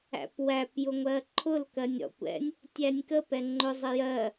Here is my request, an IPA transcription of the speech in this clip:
æ̰ p w æ p j ʊ ŋʷ ɜ ǃʰ ʊ l k ɜ nʲ ɾ ɔ̰ kʷ ɛ̰ nʲ | tʲ æ nʲ k ə p ɛ ŋ͡ǃ ʊ zˤ i j ɜ

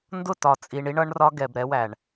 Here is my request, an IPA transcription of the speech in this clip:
n d ʊ˦˨ t ɒ˨ t͡sʼ i˨ ɳ i˦ ɳ ʌ˦ ɳ r ɒ˦ ɡ ɛ˨ b ɾ ɛ˦ w æ˨ ɳ

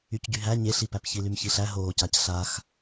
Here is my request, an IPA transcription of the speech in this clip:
y c ɟ y ɦ æ ɲ e ɬ i p æ p ç i l y m ç i ɬ æ ɦ oː c a c ɬ a x

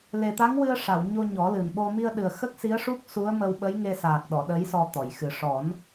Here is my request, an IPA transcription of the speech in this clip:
l e˨˩ t̪ a˧˥ ŋ w ɨ˧ ə̯ ʂ a˨˩˨ w ɲ o˧ ɲ ɔ˨˩˦ l ɨ˨˩ n ɓ o˧ m i˧ ə̯ ɗ ɨ˨˩ ə̯ x ə˦˥ k̚ s i˧˥ ə̯ ʂ u˦˥ k̚ s u˧˥ ə̯ m ə˧ w ɓ ə˧˥ j ŋ e˧ s aː˨˩ k̚ ɗ ɔ˨˩˨ ɗ ə˧˥ j s ɔ˧ t̪ ɔ˨˩˨ j x ɨ˨˩ ʂ ɔ˨˩˦ n

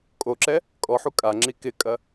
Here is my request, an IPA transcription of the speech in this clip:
kʼ o ǁ ɛ | kʼ ɔ ħ u kʼ a ŋ͡ǁ i k ɪ kʼ ɐ

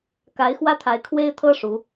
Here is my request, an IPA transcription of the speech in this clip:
k a˨˦ ɪ̯ x w ä˦ t̪ʰ a˨˦ ɪ̯ kʰ w e˦ ɪ̯ t̪ʰ ɤ˦ ʂ u˨˦

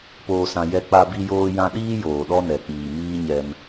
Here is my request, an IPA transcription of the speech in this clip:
p oː˨ s ã˨ j ɛ˧ k͡p a˧ b i˧ j oː˧ j ã˧ ɗ iː˦ j oː˨ ɗ ɔ˦ n ɛ˨ k͡p iː˨ m iː˦ ɲ ɛ˧ m

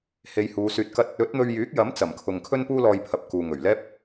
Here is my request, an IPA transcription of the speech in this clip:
h e˨˧ j h uː˨˧ s yː˧ t̚ k ɐ˥ t̚ | ɵ˨˥ t̚ n̪ ɵ˧ ɥ j yː˨˥ k̚ j ɐ˨˥ m t͡s ɐ˨˩ m kʰ ʊ˨ ŋ kʰ ɵ˥ n p uː˥ l ɔː˧ j pʰ ɐ˨ p̚ k uː˨ ŋ ɵ˨˩ ɥ l ɛː˥ p̚

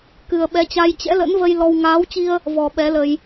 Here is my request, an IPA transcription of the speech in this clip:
k ɨ˨˩ ə̯ ɓ ɛ˨˦ t͡ɕ a˧ j t͡ɕ ɛ̰˧˥ l ə̰˧˥ n v ə˧ j l ɔ˧ w ŋ aː˨˦ w t͡ɕ i˧ ə̯ | v ɔ˨˩ ɓ ɛ˨˦ l ə˧ j

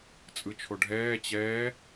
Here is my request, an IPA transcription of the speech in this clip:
t͡sʼ ɯ t͡ʃʰ o ɖʱ ɛː t͡ɕ ɛː

